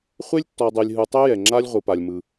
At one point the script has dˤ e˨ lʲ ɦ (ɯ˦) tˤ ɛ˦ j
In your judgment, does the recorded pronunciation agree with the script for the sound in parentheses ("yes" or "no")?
no